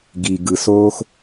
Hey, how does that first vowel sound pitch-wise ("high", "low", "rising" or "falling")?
low